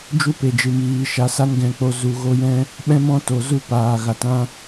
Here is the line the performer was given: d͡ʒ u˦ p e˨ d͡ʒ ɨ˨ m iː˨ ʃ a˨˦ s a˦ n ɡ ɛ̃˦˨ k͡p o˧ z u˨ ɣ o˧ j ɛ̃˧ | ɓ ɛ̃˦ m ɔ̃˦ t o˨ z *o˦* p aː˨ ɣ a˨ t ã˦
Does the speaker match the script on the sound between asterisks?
no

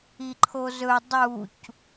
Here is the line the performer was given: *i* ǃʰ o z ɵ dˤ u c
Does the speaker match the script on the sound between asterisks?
yes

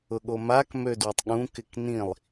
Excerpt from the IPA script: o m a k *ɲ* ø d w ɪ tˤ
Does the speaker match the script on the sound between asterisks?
no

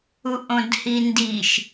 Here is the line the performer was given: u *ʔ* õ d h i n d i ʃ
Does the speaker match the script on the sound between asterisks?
yes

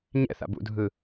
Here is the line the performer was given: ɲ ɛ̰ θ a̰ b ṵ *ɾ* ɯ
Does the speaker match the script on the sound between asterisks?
no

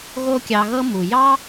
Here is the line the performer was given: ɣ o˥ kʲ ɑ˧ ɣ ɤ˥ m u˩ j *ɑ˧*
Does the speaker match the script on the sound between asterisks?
no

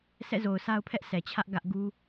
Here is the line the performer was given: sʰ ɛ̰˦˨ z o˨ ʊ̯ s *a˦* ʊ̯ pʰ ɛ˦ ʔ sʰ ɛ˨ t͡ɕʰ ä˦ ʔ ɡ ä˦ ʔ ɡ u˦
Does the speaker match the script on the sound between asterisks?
yes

